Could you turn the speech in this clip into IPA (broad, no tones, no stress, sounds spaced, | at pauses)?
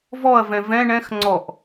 v ɔ ɐ̯ v ɛ̃ v ɛ̃ ɳ ɛ̃ x ŋ͡ǀ ɔ ʔ